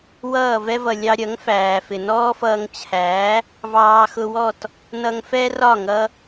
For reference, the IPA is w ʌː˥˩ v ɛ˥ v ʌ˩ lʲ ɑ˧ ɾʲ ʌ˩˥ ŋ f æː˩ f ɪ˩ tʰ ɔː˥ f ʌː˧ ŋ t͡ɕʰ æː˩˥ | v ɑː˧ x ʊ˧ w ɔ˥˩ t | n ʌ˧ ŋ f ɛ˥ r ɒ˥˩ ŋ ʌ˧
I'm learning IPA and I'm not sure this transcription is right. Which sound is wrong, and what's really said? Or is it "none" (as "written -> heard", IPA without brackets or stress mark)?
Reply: tʰ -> n